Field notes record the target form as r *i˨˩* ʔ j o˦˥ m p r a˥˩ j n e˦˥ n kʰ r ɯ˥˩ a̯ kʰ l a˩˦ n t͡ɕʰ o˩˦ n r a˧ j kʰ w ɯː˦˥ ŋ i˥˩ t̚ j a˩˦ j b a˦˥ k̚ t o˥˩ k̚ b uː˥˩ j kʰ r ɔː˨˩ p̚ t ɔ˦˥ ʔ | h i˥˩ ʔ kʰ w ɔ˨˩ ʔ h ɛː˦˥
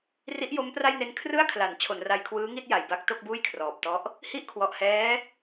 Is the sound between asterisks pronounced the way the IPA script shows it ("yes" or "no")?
no